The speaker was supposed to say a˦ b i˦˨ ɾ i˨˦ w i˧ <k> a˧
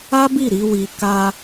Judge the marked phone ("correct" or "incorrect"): correct